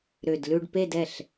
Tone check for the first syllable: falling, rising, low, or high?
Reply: low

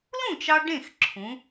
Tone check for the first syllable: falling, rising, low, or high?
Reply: falling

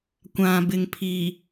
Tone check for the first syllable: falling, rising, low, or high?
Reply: low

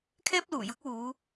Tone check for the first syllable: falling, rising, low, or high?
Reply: high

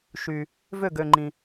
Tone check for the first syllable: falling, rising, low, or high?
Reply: low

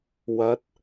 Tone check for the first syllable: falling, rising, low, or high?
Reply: rising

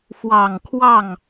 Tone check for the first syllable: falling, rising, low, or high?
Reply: low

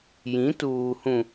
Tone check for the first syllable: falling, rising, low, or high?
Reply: rising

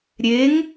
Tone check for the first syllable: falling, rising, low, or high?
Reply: rising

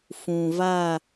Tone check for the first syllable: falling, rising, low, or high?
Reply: low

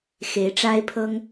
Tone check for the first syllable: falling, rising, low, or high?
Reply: rising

